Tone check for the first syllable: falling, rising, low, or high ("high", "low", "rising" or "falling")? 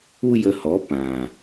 high